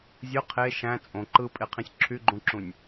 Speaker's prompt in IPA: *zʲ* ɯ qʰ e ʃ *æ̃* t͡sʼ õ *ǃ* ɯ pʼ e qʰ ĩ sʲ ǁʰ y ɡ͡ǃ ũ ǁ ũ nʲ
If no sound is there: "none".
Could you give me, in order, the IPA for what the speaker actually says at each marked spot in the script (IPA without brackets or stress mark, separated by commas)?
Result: zʲ, æ̃, ǃ